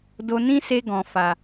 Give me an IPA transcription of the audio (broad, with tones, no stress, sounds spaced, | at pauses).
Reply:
d o˧ n ĩ˦ s e˧ ɡ ɔ̃˨ f a˨